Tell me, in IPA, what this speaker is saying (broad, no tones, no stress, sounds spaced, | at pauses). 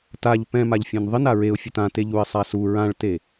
t a ʎ p ɛ̃ m a ʎ fʲ ẽ n ðˤ ɪ n a ɹ e ʊ̯ fʲ ʊ t ã t e ʎ u ɪ̯ sˤ a s u ɹ ã ɭ t e